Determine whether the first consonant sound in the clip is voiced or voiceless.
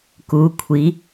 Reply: voiceless